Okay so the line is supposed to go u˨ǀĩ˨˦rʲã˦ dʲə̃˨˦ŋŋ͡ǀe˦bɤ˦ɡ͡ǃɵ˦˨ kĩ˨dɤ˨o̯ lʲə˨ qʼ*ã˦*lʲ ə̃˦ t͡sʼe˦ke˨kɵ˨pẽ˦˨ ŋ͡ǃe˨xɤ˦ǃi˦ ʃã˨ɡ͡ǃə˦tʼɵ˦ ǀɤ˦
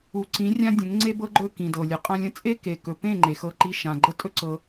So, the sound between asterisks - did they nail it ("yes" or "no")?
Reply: yes